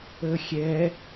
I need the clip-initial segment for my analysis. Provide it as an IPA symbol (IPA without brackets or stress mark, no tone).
ə